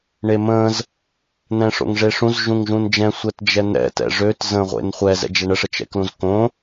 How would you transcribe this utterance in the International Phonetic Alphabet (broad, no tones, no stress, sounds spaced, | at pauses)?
ɳ e m ə̃ z | n̪ ɛ̃ ʂ o̰ ŋ ʐ e ʂ ũ z ʒ ũ ŋ ʒ ũ n d͡ʒ ɛ̃ sʷ ɛ t d͡ʒ ɛ n̪ ɛ̰ t ɛ̰ ʐ ø t z ə̃ ʁʷ ḛ n χʷ ɛ z ɛ̰ d͡ʒ ɛ ɳ ə ʂ ə t͡ʃ ɛ̰ k l ũ z k õ